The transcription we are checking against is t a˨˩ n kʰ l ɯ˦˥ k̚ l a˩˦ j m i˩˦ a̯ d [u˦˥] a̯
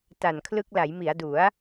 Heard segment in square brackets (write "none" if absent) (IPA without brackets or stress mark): u˩˦